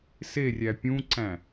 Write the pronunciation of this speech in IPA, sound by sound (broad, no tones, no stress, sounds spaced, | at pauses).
s e rʲ æ pʲ ũ ǀ æ̃